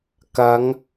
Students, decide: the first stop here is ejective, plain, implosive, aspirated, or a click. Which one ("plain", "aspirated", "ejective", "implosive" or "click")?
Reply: plain